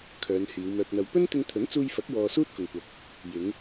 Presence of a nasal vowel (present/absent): absent